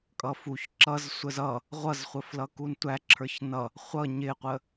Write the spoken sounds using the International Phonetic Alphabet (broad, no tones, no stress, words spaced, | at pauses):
kʼʌfuç ǁʌz sʷəzʌ | ʁʷʌzχʷəflʌkun tʷæǁʰə˞ç nʌ | χʷʌ ɲɪqʷə